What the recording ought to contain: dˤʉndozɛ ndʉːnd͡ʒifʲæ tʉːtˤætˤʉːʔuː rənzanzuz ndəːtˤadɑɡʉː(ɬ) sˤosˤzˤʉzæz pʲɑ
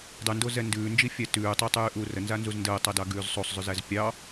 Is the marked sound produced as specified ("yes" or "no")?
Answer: no